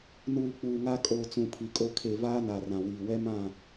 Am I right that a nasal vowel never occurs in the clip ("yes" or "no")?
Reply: no